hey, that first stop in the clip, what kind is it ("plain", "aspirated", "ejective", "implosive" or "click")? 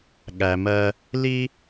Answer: implosive